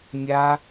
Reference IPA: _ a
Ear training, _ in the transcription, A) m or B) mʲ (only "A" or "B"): B